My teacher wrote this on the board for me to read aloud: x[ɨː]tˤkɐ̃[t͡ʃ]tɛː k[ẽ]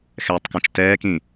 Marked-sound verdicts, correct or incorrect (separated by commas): incorrect, correct, incorrect